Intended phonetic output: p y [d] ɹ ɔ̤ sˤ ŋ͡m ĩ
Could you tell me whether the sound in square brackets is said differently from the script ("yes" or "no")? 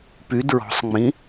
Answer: no